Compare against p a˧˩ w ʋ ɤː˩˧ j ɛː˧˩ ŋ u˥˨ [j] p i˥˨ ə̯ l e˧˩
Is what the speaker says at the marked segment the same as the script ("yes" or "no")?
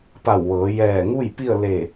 yes